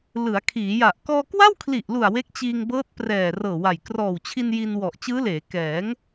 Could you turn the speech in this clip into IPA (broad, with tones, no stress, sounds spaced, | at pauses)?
l ɯ˩˦ a̯ kʰ iː˩˦ j a˨˩ ʔ k ɔː˧ k w a˥˩ w kʰ l i˨˩ ʔ l u˨˩ a̯ w e˦˥ k̚ t͡ɕ iː˧ ŋ b ɤː˦˥ t̚ p r ɛː˨˩ r ɤː˨˩ w a˨˩ j k r ɔː˨˩ w t͡ɕʰ i˧ n j i˧ n w ɔ˨˩ ʔ t͡ɕ ɯː˦˥ l eː˩˦ k ɛː˩˦ ŋ